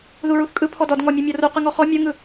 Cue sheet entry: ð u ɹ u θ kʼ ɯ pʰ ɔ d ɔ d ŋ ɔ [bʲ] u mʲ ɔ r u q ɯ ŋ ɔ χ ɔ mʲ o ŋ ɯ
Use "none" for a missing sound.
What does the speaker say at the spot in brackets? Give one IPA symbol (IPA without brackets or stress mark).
mʲ